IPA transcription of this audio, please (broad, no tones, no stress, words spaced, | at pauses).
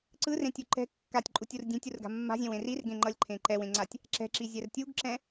ǀɯrẽtʲu ǃɛ̤ kːatʲǃʼutʲur dʲẽtʲurɡa̤ mːa̤zʲɛ̃wẽ rirɡẽŋ͡ǃʌlʲǃʰẽ ǃɛwẽŋ͡ǀatʲ | ǁɛ̤ǁizʲɛr tʲuɡǁɛ̃